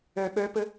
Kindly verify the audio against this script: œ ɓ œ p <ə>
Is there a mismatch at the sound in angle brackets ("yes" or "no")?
no